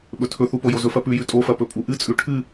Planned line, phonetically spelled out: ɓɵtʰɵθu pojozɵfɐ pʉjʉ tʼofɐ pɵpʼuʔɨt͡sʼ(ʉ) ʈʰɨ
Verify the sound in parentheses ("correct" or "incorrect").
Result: correct